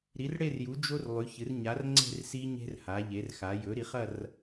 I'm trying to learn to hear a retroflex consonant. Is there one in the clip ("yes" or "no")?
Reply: yes